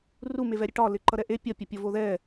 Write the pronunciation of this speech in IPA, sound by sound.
r u m e v ɛ ɾʲ ə ʈ ɒ l ɪ ǃ ʌ ɾ ɛ ʔ e pʲ ʌ pʲ ʌ pʲ o v o ð ɛ

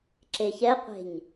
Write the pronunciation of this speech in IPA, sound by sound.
ǁ e ç ɛ qʷ e̤ ɲ

